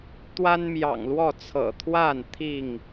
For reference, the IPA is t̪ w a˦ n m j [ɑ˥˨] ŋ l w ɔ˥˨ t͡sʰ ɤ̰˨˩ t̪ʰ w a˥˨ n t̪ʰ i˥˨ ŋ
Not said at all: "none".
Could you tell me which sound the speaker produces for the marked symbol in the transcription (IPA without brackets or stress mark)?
ɑ̰˨˩